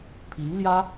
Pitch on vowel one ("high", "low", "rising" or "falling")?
rising